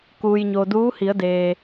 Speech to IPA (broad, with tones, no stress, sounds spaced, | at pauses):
k uː˩ j ɲ o˩ d uː˧˥ h i˩˧ ə̯ d eː˩